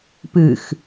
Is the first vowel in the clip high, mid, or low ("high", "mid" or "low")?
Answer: high